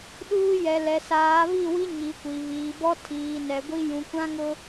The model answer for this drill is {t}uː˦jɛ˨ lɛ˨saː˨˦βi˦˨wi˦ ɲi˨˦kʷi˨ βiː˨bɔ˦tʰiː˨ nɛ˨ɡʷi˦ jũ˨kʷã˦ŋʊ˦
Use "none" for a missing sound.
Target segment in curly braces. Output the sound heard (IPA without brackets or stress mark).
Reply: ɗ